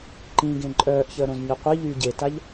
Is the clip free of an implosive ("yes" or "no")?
yes